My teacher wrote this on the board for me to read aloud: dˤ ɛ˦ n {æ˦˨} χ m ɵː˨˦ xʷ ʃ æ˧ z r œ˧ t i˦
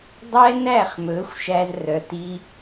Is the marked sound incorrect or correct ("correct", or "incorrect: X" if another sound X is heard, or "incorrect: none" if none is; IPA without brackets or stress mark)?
correct